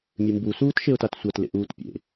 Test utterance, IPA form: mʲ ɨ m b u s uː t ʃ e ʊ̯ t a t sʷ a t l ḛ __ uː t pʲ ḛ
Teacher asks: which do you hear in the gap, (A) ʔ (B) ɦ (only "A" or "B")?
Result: A